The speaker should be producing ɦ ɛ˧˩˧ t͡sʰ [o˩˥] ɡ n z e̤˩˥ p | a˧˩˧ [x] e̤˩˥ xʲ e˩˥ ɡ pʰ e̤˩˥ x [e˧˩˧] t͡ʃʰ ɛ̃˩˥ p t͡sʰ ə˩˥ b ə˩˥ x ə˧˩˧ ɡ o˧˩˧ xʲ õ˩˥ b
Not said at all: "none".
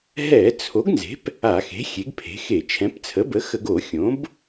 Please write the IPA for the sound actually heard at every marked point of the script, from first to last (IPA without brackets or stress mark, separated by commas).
o˩˥, x, e˧˩˧